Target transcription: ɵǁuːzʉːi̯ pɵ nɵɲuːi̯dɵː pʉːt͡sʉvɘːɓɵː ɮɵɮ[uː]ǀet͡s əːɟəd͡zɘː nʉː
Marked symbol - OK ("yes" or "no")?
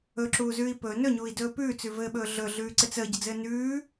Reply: no